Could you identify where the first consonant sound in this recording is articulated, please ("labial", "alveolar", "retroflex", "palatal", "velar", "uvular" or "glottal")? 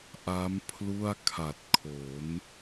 glottal